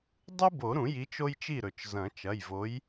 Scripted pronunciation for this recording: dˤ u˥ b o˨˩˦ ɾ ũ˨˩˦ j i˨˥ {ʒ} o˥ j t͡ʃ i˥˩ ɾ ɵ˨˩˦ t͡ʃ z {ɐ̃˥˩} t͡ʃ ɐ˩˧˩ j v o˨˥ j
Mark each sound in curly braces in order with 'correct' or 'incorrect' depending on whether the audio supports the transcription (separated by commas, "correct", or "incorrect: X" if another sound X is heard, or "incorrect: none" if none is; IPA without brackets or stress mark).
incorrect: t͡ʃ, incorrect: ɐ̃˨˩˦